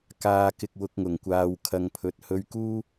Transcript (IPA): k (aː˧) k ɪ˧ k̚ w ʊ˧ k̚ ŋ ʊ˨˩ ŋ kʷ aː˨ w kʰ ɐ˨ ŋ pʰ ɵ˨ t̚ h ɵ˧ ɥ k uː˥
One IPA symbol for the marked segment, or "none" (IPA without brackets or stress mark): aː˧